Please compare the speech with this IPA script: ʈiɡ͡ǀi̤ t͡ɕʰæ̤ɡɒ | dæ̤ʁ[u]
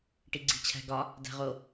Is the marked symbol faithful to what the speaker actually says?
no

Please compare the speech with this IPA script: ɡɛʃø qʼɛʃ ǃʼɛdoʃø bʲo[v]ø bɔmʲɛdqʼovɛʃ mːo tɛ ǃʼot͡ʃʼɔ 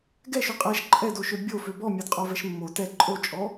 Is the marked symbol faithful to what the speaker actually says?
no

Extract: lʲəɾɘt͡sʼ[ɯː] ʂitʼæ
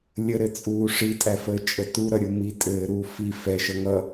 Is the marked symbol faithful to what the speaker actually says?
no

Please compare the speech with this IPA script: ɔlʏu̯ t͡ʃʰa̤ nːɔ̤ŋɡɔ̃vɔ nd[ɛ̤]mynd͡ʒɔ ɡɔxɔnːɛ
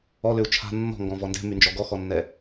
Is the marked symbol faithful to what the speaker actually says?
yes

